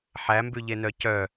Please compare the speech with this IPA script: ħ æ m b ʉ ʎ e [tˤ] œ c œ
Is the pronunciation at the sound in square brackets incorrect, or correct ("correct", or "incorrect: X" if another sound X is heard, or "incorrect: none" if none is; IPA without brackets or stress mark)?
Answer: incorrect: n